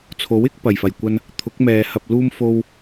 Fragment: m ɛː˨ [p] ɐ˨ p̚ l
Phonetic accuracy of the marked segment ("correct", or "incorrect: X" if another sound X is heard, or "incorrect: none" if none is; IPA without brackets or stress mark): incorrect: h